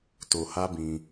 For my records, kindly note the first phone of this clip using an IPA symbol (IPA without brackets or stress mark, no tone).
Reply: t